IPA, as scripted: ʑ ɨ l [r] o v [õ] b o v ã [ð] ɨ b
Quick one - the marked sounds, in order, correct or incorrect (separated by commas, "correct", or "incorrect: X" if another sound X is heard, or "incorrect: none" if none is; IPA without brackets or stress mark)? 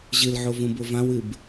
incorrect: ʕ, incorrect: ũ, incorrect: w